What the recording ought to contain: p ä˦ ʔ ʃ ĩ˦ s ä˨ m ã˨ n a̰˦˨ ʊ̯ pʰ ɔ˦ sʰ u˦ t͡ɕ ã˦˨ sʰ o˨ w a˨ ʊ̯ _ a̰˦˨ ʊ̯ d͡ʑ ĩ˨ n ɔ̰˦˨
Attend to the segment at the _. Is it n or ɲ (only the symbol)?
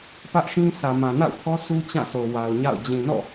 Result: ɲ